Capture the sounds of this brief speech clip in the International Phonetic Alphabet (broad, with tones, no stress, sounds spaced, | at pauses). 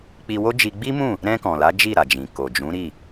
k͡p i˧ w o˦ d͡ʒ i˧ ɡ͡b i˦ m ũ˦˨ | ɾ ɛ̃˧ k ɔ̃˨ l a˨˦ d͡ʒ i˦˨ ɾ a˨ d͡ʒ ĩ˨ k o˨ d͡ʒ ũ˨˦ ɾ i˦˨